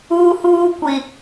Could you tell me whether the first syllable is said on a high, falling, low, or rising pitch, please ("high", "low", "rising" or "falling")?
high